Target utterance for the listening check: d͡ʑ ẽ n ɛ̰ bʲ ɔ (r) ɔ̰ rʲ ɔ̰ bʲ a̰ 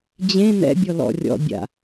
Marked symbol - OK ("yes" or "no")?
no